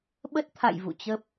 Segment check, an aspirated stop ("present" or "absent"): present